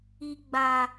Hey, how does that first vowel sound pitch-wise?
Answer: low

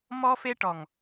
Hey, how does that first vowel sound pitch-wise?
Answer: high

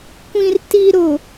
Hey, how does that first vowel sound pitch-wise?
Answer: low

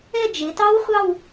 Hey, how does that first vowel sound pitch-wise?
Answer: falling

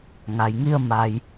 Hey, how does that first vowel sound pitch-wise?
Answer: low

